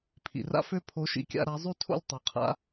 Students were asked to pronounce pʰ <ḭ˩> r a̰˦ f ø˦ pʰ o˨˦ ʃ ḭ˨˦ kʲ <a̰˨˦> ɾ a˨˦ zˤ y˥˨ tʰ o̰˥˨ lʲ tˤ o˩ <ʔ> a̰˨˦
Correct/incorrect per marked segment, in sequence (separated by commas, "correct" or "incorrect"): correct, incorrect, incorrect